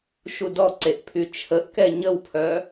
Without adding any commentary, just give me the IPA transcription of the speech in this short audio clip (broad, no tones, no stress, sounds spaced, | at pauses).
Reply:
ʃ u d ɔ ǀ e ʔ pʰ y t͡ʃʰ ə ʔ k ɛ ɲ ə w pʰ œ